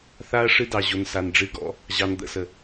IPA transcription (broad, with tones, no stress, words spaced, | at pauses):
θa˦ɐ̯ ʂɨ˦dɑ˨ ʑo˨nsa˨n ɖ͡ʐɨ˨˦ɡɔ̰˨˦ | ʑɑ˧nd̪ə̰˦˨sə˨